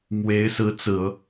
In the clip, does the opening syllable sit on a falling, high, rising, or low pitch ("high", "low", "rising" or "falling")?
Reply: rising